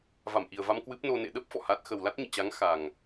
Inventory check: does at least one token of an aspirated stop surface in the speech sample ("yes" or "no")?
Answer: no